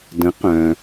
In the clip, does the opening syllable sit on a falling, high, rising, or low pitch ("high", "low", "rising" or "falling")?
rising